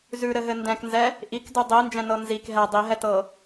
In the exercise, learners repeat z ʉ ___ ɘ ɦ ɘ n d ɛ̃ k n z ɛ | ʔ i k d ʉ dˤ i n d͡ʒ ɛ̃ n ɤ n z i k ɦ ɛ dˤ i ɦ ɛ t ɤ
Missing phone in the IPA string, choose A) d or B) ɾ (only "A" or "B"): B